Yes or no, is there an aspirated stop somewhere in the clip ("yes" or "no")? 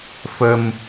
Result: no